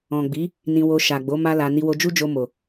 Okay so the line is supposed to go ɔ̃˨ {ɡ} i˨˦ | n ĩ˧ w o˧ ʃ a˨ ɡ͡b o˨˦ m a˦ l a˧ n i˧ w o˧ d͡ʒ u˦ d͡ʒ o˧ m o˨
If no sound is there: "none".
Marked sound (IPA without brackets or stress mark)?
ɡ͡b